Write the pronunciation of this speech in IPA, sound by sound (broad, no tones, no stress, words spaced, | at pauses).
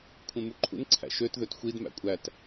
kʷʰẽmuǃʰṵn ǀʰæ̰ʃøt ðøtxʷid mæ̰kʷʼæt